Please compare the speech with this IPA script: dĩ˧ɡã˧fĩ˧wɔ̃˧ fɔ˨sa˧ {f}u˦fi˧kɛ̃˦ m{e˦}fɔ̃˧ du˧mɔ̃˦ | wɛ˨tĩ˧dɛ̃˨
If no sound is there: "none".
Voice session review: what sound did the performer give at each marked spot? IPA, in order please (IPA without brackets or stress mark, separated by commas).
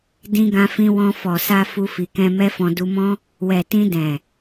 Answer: f, ɛ˦